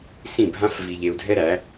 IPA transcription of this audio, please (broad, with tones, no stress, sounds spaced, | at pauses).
s ĩ˦˨ bʱ ã˦ f v i˧ ʎ e˧ u̯ dʱ ɛ˦ ɾ æ˨˦